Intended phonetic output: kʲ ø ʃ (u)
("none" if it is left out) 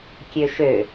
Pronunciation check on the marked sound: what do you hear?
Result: ø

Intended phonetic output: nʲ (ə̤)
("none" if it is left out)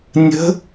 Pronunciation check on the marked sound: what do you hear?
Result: ə̤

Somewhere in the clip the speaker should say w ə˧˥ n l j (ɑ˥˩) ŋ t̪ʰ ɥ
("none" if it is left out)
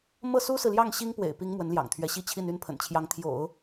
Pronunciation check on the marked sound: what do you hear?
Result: ɑ̰˨˩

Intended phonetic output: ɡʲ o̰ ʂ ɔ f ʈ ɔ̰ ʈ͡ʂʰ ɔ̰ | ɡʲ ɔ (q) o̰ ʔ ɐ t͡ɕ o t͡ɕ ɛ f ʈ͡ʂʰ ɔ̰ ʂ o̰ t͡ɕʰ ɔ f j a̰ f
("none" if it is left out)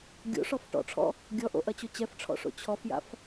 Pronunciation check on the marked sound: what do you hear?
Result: ʔ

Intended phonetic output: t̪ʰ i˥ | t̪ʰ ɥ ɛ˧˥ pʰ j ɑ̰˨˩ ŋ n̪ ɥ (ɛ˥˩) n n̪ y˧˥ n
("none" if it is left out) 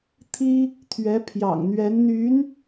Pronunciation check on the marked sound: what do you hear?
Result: ɛ˧˥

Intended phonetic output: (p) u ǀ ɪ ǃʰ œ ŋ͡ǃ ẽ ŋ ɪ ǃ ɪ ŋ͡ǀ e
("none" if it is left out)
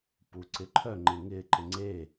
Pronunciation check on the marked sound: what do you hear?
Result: p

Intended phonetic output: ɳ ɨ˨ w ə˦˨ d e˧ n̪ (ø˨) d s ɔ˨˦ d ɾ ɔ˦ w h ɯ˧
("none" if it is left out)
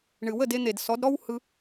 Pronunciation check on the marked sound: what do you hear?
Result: e˨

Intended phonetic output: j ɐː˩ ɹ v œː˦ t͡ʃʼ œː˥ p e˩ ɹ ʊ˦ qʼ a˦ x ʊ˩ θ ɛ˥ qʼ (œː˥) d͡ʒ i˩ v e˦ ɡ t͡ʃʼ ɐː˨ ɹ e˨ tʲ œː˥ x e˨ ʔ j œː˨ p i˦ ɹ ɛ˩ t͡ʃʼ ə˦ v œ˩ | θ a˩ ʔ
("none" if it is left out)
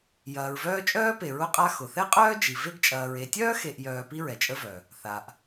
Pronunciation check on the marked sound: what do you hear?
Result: œː˥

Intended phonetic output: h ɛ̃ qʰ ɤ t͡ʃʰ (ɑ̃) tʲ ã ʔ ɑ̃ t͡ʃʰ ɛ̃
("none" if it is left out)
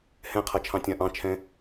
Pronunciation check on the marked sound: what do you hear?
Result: ɑ̃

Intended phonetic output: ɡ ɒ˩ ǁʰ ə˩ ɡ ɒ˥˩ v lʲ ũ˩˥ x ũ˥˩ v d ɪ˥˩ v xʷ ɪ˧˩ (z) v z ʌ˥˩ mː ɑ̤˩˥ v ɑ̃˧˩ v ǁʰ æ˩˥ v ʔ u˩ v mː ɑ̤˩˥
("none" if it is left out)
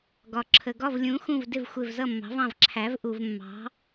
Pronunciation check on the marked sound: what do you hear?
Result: none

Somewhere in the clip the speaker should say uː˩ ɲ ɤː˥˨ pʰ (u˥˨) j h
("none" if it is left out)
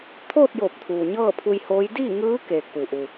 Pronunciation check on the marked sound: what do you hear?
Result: u˧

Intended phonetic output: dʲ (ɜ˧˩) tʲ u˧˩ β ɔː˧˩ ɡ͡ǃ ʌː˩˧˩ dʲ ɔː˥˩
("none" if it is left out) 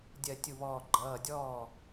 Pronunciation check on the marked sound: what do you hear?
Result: ɜ˧˩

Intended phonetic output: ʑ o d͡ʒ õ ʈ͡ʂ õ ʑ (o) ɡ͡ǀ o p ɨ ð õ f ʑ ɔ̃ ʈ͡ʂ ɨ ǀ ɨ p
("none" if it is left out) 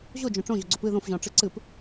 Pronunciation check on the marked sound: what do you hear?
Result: o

